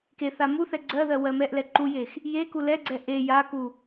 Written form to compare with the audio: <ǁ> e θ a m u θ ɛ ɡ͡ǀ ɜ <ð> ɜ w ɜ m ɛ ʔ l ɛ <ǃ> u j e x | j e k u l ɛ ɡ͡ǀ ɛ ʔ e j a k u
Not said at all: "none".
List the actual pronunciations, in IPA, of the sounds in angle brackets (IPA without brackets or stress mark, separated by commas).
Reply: k, ð, ǃ